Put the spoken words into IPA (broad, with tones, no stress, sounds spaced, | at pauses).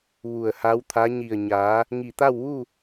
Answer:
ʋ u˧˩ ə̯ h a˧˥ w t̪ʰ a˧˥ ɲ i˧˩ ə̯ ɲ aː˩˧ | ŋ i˧˩ t̪ a˥˨ w ʋ u˥˨